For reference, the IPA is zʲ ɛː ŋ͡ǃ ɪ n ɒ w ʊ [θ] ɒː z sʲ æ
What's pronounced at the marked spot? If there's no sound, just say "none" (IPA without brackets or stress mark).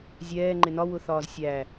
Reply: θ